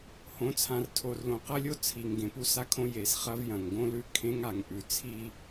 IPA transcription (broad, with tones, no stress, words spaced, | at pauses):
hõ˨˦t͡sʰã˨rtʰo˨rlõ˨ qɐ˦lʲo˦t͡sʰi˨ŋ ɡẽ˨pu˦sa˦kʰõ˦ je˨sχɐ˦v jɐ̃˨ŋɡõ˦lʉ˦ kʰẽ˦ŋa˨ŋʔʉ˨ t͡sʰi˦